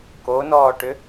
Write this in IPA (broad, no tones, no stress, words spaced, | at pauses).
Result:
konɔːʈʏ